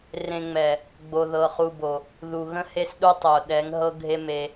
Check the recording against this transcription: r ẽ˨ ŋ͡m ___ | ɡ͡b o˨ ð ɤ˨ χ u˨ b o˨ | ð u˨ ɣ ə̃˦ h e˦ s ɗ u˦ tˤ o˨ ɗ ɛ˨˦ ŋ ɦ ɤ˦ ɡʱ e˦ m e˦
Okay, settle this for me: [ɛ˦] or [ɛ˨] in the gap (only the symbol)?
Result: ɛ˨